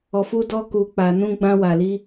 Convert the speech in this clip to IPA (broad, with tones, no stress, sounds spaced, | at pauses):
ɔ˧ f u˦ d ɔ˦ k u˦ k͡p a˦ n ũ˦ ɡ͡b ã˦ w a˧ l i˦